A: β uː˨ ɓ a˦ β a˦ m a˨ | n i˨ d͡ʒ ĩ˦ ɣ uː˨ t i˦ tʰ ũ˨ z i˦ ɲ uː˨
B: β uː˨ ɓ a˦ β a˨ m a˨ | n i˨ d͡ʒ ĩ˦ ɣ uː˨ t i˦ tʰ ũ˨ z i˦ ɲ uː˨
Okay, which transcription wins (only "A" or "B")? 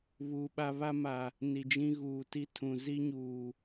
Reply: A